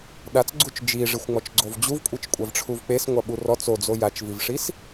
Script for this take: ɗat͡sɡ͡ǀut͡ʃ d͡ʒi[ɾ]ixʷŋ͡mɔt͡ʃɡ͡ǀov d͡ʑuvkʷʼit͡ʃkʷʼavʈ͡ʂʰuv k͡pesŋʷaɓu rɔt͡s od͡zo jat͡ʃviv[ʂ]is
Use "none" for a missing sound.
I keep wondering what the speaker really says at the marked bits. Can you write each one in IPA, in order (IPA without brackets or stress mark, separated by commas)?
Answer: ʐ, ʂ